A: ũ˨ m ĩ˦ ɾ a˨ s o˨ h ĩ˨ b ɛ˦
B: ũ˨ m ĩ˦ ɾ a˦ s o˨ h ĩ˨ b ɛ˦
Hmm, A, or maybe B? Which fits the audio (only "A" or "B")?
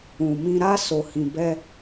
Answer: B